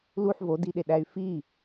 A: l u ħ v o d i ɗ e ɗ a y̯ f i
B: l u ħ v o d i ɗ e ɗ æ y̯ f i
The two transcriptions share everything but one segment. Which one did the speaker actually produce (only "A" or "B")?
B